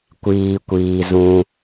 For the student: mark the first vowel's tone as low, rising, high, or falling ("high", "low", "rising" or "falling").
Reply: low